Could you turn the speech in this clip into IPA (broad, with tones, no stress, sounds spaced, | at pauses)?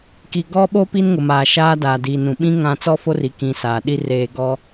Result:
k i˨ ɡ ɔ˦ ɓ o˦ p i˦ n ŋ ʊ˨ m aː˨ ʃ aː˦ d aː˨ d iː˨ n ũ˨ ɓ ĩ˦ ŋ ã˦ t͡s ɔ˦ f o˦ r i˨ k ĩ˨ s aː˨ ɗ i˦ r eː˨ ɡ ɔ˦